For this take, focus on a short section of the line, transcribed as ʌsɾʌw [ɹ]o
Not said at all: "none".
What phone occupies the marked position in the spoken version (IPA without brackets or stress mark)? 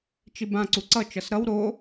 ɾ